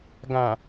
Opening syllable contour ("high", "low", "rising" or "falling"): low